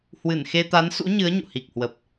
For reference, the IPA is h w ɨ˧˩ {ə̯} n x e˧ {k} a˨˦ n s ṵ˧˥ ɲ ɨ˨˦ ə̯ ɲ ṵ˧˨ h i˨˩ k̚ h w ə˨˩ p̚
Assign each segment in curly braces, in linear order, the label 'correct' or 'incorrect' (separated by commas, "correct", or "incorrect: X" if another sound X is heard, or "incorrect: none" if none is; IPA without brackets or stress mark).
incorrect: none, incorrect: t̪